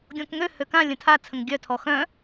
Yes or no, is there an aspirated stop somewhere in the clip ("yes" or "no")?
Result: yes